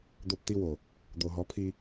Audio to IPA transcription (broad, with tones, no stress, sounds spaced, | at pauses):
d̪ o˦ p t̪ i˦ w o˨ | d̪ o˨ ɦ ɔ˨˦ pʰ i˧